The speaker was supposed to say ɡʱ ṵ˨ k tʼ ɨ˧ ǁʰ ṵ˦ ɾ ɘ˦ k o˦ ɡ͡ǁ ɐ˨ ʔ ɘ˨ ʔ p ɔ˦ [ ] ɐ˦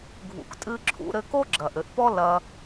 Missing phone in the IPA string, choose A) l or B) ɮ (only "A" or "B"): A